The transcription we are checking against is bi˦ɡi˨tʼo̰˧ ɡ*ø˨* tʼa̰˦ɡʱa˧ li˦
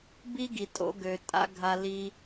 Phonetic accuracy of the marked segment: correct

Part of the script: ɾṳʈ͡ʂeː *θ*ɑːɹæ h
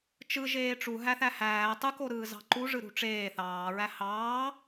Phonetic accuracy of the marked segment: correct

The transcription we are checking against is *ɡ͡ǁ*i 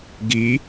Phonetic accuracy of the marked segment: incorrect: ɡ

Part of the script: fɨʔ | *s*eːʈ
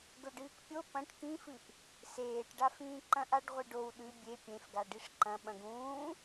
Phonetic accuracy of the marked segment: correct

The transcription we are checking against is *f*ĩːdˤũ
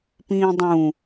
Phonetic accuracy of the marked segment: incorrect: p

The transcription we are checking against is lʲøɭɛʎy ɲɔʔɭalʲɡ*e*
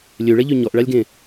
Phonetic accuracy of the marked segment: incorrect: ẽ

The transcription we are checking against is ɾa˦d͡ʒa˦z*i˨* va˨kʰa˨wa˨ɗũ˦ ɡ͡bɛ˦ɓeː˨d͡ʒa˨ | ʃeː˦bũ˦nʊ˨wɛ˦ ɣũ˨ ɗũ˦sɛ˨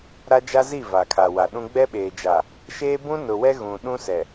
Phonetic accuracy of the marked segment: incorrect: i˦˨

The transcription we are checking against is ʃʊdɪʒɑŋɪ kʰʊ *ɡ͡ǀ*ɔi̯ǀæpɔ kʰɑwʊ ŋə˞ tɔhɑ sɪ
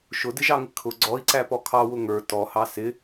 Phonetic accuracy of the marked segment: correct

